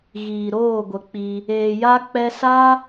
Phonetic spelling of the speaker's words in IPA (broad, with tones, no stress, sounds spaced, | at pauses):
ɣ iː˨ ɾ oː˦˨ ɡʷ ə˨˦ k͡p i˧ | eː˨ j a˧ k͡p ɛ˧ s a˧